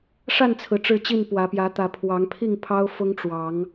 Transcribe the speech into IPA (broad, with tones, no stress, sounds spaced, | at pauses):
ʂ a˥˨ n t͡sʰ ɹ̩˩ ʈ͡ʂ ɻ̩˥˨ t͡ɕ i˥˨ n p w ä˨˦ p j ä˨˦ t̪ ä˨˦ pʰ w ɑ˨˦ ŋ pʰ i˥˨ ŋ pʰ ɑ˦ ʊ̯ f ʊ˦ ŋ ʈ͡ʂ w ɑ˨˦ ŋ